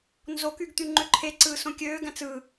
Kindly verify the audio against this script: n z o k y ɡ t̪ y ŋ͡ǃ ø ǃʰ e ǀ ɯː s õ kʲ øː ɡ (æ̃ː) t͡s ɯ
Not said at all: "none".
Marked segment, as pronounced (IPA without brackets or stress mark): æ̃